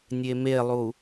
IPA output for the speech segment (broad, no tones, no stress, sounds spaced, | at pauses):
nʲ e m e lˠ u